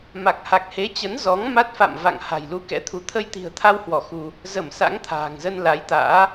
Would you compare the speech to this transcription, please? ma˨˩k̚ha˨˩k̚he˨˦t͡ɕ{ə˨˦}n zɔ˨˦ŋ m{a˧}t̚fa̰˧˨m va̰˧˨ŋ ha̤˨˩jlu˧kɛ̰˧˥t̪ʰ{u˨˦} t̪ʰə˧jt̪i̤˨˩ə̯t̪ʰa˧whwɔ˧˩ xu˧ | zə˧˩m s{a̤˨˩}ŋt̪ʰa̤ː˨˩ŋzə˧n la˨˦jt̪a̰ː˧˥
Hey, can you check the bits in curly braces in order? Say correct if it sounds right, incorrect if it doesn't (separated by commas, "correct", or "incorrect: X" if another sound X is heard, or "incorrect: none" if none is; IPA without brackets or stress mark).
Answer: correct, incorrect: a˦˥, correct, incorrect: a̰˧˥